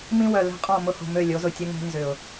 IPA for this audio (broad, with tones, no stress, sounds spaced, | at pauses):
m ĩ˦ w œ˨ l ɛ̤˦ qʼ ɔ̃˦˨ m ʊ˦ h o̤˨ m ø˦˨ lʲ o˨˦ z ʊ˨ tʲ ə˦ ŋ ɛ̤˦ n z ʏ˨ ʊ̯